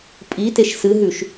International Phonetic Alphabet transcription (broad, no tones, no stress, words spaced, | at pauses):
pʼiteʃ sɨɦʉʃ